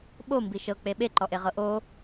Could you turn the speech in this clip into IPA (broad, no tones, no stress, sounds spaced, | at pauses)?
ɓ o m b i ʃ ɤ k͡p e ɓ e ǃ ɔ ʔ e ʁ ɤ ʔ o